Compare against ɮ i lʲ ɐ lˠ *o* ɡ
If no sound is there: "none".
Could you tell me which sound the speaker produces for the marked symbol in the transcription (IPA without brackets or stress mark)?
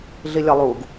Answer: u